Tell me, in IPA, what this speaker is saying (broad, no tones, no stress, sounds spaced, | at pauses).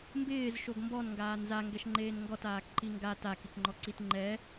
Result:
m b ɪː z ʃ o ɡ m b ɔ n ŋ ɡ aː n z a ŋ ɡ ɛ ʃ ŋ͡ǃ eː n ŋ ɡ ɔ t aː k ǃ i ŋ ɡ a t a k i k ŋ͡ǃ ɔ ǀ i t ŋ͡ǃ ɛ